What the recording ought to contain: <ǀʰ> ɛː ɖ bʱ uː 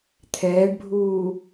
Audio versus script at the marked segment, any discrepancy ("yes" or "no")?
yes